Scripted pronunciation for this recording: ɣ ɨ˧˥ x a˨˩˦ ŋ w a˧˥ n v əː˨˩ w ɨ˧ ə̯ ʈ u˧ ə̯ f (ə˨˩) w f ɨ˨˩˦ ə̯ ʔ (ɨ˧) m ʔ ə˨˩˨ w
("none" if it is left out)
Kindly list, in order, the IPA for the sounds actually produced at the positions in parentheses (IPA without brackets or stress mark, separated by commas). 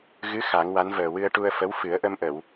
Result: ə˧˥, ə˧